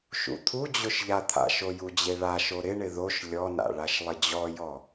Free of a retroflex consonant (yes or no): no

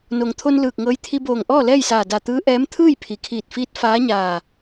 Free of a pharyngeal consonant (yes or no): yes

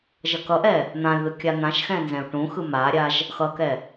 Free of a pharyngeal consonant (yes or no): yes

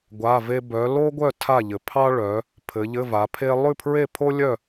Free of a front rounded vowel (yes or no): no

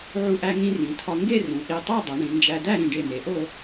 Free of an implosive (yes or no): yes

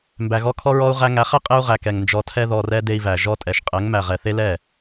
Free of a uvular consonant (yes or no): no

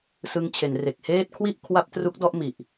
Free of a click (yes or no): yes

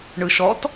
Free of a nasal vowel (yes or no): yes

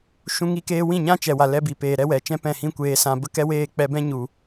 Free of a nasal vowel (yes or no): no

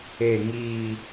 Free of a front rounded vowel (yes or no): yes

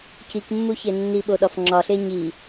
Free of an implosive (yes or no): no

